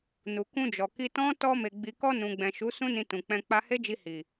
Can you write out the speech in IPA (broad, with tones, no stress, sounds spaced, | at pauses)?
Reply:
n u˨ k ũ˧ d͡ʒ ɔ˨ k i˧ t ɔ̃˦ t ɔ˧ m e˨ ɡ͡b i˨ k ɔ˧ n ũ˨ ɡ͡b ɛ̃˨ ʃ u˨˦ s ũ˦ n ĩ˧ t ũ˨ k͡p ɛ̃˧ k͡p a˧ h e˦ d͡ʒ i˧ h i˨